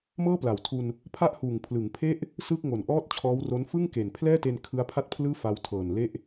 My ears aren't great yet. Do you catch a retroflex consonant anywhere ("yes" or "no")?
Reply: no